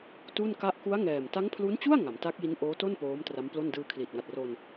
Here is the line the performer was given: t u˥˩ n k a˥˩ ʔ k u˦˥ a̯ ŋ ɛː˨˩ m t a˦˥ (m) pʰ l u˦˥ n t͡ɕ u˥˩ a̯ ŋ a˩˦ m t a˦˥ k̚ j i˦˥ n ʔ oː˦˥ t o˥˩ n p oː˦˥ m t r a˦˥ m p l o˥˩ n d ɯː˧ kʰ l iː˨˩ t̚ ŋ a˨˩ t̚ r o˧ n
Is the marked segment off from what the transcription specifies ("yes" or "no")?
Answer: yes